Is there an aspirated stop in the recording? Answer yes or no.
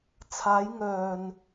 yes